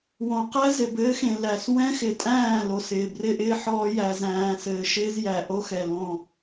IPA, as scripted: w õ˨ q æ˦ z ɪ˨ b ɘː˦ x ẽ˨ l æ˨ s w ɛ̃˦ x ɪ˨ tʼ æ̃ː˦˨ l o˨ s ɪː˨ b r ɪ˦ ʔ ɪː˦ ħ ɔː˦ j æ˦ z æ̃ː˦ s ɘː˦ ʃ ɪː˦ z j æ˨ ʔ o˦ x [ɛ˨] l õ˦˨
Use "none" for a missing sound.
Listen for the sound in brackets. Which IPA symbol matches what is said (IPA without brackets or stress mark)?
ɛ˨